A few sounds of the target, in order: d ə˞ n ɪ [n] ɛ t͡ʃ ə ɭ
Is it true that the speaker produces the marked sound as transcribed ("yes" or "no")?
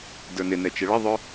yes